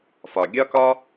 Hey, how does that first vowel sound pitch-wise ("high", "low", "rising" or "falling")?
low